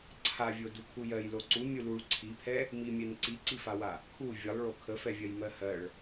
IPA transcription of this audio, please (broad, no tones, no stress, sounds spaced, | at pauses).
ǀʰ a vʲ o d u kʰ u j ɜ j l o ǀ u mʲ u l u ɭ ǀʰ i pʰ ɛ | m i mʲ ɛ n ǀ i ǀ i f a w a | kʰ u vʲ ə lˠ ɭ o kʰ ə f ɛ vʲ ɜ j m ɜ h ɜ ɭ